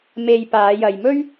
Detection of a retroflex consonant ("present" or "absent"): absent